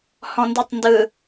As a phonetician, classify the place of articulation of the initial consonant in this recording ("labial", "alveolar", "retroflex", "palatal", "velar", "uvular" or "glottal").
glottal